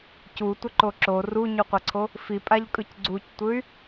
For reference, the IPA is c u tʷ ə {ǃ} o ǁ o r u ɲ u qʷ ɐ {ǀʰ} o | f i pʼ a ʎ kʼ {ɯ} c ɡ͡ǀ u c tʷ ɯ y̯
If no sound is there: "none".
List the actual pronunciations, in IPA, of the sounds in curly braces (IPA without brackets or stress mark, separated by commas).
ǃ, ǀʰ, ɯ